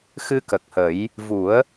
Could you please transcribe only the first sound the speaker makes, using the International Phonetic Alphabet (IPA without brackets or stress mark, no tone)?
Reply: x